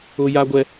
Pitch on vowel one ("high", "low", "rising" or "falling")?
high